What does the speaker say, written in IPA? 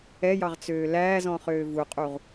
ɛ j ɑ ʁ t͡s øː l æː z ɔ̃ χ øː v u qʼ u ʁ

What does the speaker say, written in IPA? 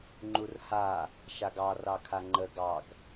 ŋ͡ǃ u r h a | ʃ a ɡ ɑ r ɑ kʰ a ŋ͡ǃ ə ɡ ɑ ɡ

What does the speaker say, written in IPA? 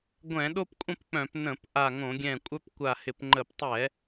ɡʷ ɛ̃˧˩˧ ɗ o˦ p kʷʼ ə̃˦ p k͡p œ̃˧˩˧ p n ə̃˧˩˧ p ʔ a˧˩ ŋ õ˧˩˧ ɡʲ ɛ̃˧˩ kʷʼ œ˦ p kʷ a˧˩ h ɪ˧˩˧ p ŋ͡ǃ ə˧˩˧ p tˤ ɛ˧˩˧

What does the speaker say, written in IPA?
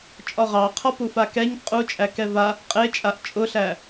t͡ʃʼ ɒ ʁ ɑ qʰ ɒ p u f a k ɛ ɲ qʼ u t͡ʃʼ æ k ɛ v a | qʼ e t͡ʃʼ a ʔ t͡ʃʼ ʊ ɬ æ

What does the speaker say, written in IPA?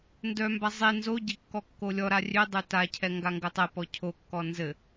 n d œ m b a zˤ e n z o ɟ ɛ kː ɔ kː o lʲ ɔ ɾ a rʲ ø dˤ ø t a cʰ ɛ ŋ ɡ a ŋ ɡ ɘ tˤ ɛ p ɔ cʰ o kː ɔ n z ɘ

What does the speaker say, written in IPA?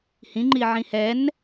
h ĩ ŋ͡ǃ i ʕ ĩ h ɛ n

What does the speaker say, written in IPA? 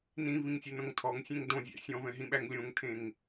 n ĩ v ĩ ŋ sʲ e n õ ŋ tʰ ɔ ŋ sʲ ẽ ŋ d õ zʲ æ̰ sʲ ɔ̃ v ɛ̃ ɦ ĩ ɓ æ ŋ lʲ õ ŋ tʰ ẽ ŋ

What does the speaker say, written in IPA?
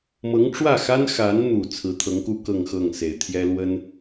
m ɤ˧˥ ŋ ʈ͡ʂ w ä˥˩ x a˥ n x a˧˥ n n̪ u˨˩ t͡sʰ ɹ̩˧˥ t̪ʰ ɤ˧˥ ŋ k u˥ k ɤ˥˧ ŋ x ɤ˥˩ ŋ s e˨˩ ɪ̯ t̪ʰ j ɛ˥ l w ə˥ n

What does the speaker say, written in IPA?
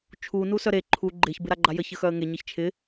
t͡ʃʰ u n u s œ ɾ e ǃʰ u ɡ͡ǃ ɪ ç b ɪ ɾ a ɡ͡ǃ a j ə ç ə x œ ə̯ ŋ e ɲ ɘ ç t͡ʃʰ ɪ

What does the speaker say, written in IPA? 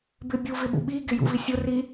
b ɪ bʲ u v ɪ ɓ ṵ ɓ i ɡ ɪ j ṵ v i sʲ ʊ r i

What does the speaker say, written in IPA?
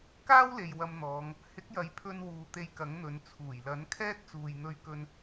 k aː˥ w l e˨ j w ɐ˧ m n̪ ɔː˨˧ ŋ | h ɪ˨˥ k̚ j ɐ˨ j pʰ ɵ˧ n w uː˨ t̪ e˧ j k ɐ˨˥ ŋ n̪ ɵ˨˧ n t͡sʰ uː˨˩ j l ɐ˨˥ n kʰ ɛː˥ t̚ t͡s uː˨ j n̪ ɵ˧ ɥ k ɵ˧ n

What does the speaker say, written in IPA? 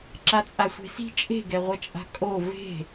ǁ a t͡sʼ a sʷ e̤ s i̤ t͡ʃʼ e̤ ɡ ɛ ʁʷ ʌ t͡ʃʼ a̤ kʼ o v e̤

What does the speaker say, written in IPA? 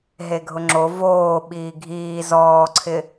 ɦ e ɡʱ ʊ ŋ͡ǁ o v oː ɓ iː ɡʱ iː z ɔː ǀʰ ɪ

